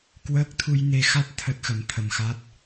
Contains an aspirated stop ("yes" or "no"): yes